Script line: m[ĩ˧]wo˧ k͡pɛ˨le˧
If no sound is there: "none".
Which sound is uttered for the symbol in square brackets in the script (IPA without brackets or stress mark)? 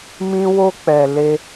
ĩ˧